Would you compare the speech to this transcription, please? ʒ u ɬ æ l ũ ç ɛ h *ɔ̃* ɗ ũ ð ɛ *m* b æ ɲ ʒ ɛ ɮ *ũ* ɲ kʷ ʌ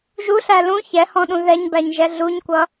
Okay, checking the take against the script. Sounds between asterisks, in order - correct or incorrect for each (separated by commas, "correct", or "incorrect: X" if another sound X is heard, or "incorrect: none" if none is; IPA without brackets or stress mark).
correct, incorrect: ɲ, incorrect: u